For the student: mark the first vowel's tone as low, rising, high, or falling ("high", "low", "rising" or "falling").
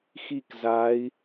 falling